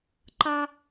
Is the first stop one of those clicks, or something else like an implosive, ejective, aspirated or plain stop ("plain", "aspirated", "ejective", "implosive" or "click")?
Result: click